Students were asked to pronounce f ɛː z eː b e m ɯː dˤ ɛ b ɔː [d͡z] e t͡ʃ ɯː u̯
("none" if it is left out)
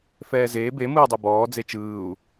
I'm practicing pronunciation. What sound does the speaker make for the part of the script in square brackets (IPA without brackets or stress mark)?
d͡z